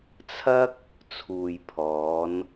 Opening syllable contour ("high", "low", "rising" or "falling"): high